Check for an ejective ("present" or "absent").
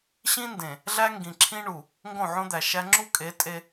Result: present